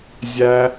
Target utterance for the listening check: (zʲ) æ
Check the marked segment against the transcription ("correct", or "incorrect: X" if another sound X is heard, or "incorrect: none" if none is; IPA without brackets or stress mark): correct